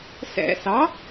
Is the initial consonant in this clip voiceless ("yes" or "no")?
yes